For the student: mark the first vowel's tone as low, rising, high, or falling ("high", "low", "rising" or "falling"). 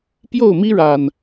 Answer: falling